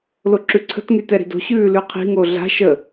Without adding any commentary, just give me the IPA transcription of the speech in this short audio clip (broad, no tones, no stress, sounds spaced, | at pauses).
l o ǁ ʉ ǀʰ ə̤ t ŋ y t ɛ ɾ i̤ d o̤ ɕ ʉː l ʉ qʰ i̤ ŋ o ɮ a̤ ʃ ə